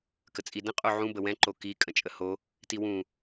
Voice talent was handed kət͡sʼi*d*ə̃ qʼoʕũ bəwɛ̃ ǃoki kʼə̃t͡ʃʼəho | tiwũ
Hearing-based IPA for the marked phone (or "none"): d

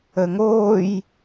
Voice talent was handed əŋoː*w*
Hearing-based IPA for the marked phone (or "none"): j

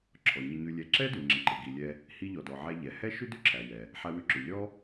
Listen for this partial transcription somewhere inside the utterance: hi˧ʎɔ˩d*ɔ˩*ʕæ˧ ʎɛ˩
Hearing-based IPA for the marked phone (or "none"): ɔ˩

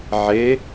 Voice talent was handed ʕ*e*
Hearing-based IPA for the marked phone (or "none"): e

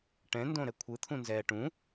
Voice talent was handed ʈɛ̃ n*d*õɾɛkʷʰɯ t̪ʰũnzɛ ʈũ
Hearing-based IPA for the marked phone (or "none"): d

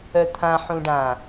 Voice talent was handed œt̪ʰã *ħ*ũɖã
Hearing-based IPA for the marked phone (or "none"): ħ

